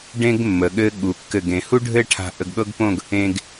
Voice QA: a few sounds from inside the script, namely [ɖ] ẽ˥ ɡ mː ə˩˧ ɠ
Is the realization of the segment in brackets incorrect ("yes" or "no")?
no